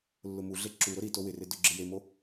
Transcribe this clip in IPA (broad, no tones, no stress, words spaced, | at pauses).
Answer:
lːʊmuɮe ǁuɾʊ ɾito wɪrɪ dʊɡ͡ǁɪjemo